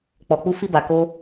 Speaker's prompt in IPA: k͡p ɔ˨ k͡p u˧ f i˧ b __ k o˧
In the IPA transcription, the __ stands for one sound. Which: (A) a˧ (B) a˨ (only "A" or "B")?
B